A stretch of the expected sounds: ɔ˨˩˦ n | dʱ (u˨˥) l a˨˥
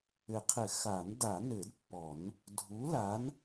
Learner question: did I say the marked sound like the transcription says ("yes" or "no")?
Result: yes